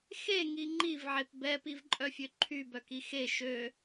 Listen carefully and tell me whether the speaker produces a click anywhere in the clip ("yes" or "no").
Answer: yes